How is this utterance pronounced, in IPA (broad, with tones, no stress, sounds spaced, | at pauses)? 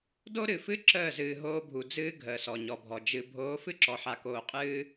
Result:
d o˦ ɾ ɨ˨ f ɨ˦ ǁ əː˦˨ z ɨː˨ ɦ oː˦ bʱ u˨ d͡z ɨː˦ ɡʱ əː˨ s ɔ˨ ɲ ɔ˨ bʱ ɔ˨ d͡ʒ ɨ˨ bʱ oː˨˦ f ɨ˦ ǁ ɔ˨ ħ a˨ k oː˨ qʼ ɨː˦